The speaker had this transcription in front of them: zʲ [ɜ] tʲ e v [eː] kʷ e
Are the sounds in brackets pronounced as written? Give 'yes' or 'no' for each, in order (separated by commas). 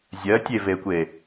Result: yes, no